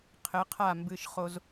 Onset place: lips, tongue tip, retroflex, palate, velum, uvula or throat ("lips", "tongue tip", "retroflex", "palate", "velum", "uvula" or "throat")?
uvula